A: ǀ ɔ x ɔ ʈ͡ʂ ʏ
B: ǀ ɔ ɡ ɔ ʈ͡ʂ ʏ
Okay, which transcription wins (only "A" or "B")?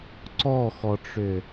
A